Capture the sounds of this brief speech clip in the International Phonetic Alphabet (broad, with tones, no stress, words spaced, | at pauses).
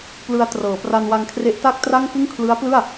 plɯ˧a̯trɤː˩˦ pra˧nwa˧ŋkʰre˦˥ʔ ta˥˩k̚tra˥˩ŋkɯ˥˩ŋ kʰlɯ˦˥a̯plɯ˥˩a̯